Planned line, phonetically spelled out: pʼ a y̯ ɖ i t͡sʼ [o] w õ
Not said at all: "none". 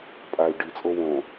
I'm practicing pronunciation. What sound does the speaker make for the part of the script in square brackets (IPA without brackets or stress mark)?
o